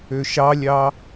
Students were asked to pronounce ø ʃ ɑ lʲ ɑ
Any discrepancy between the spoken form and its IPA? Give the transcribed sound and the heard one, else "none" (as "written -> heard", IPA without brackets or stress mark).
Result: none